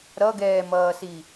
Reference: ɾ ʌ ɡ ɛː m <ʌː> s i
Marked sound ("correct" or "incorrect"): correct